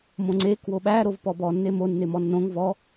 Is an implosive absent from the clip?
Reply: no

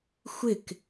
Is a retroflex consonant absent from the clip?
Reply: yes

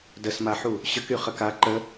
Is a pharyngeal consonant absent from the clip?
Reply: no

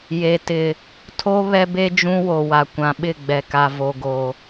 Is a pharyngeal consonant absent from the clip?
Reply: yes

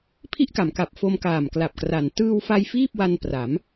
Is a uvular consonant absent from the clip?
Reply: yes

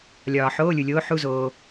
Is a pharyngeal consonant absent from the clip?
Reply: no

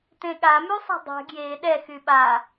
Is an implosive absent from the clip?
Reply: no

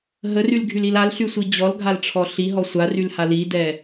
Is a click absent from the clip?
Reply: yes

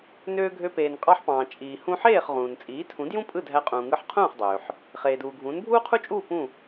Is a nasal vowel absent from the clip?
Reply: no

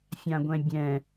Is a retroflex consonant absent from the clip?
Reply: yes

